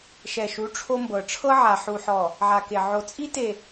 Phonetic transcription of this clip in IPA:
ʃ ɛ˨ ʃ u˨˦ ʈ͡ʂʰ o˦ m b ɤ˨ ʈ͡ʂʰ ɤ˦ ʕ a˨ ħ u˨ ħ ɔ˨ | ʕ a˨ k e˨ ʕ o˨ t͡sʼ i˦ t e˨

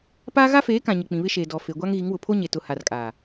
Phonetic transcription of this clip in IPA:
p aː˦ ɣ a˦ f eː˨˦ k ã˨ ɲ ɪ˨ k͡p ĩ˨ β ɪ˦ ʃ eː˨ d ɔ˨ f e˨ ɡʷ a˦ ŋ ɣ i˨˦ ŋ w ʊ˨ pʰ o˦ ɲ e˨ t ʊ˨ h a˨ r kʼ aː˨

